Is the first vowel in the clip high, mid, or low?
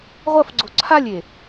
low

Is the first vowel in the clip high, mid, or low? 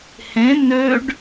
mid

